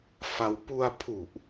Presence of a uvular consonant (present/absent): absent